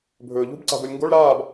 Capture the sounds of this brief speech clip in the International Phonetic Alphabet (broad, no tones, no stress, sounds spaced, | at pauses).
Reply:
bʱ ɵː ʎ ṳ b ǀ a̤ b o lʲ ŋ ɡ o ɭ ɾ aː b